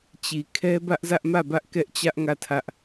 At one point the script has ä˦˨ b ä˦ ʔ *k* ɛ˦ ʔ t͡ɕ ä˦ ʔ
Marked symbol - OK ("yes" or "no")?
yes